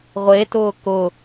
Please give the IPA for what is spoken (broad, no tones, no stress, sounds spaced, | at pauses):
ʁʷ e t ʊː k ʊ